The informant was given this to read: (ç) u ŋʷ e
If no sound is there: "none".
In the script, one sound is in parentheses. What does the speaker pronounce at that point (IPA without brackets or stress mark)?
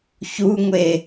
ç